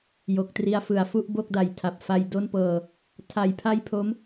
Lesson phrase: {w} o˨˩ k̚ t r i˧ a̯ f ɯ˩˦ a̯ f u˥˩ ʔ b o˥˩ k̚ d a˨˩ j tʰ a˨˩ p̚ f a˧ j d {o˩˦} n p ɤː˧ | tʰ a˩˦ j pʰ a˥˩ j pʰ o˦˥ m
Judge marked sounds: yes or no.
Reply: no, no

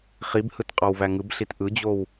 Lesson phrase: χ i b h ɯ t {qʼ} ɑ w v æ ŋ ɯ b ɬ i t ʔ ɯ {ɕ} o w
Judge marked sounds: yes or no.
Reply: yes, no

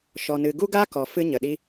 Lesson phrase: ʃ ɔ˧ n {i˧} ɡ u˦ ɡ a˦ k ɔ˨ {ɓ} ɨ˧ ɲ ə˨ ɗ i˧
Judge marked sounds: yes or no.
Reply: no, no

